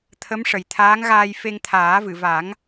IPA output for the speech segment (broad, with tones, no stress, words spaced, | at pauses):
t̪ʰə˧˥mʂə˨˩jt̪ʰaː˧˥ŋɣaː˧j fe˧ŋt̪ʰaː˨˩˦vɨ˨˩˨va˨˩˦ŋ